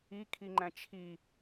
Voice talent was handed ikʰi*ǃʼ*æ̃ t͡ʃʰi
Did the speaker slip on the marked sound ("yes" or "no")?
yes